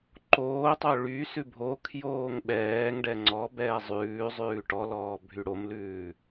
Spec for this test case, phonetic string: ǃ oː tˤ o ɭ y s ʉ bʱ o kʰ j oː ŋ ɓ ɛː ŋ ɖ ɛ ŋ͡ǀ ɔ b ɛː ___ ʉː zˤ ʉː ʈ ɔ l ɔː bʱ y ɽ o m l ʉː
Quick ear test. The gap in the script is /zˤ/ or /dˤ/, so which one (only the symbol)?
zˤ